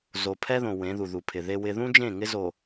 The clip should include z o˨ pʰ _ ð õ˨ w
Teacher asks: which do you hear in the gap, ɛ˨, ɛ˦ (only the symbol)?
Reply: ɛ˦